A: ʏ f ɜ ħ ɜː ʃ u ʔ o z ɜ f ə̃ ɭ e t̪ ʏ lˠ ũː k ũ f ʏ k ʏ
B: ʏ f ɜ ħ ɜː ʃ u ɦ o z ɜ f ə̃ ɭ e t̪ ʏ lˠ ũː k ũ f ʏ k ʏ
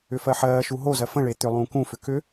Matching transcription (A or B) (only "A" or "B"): B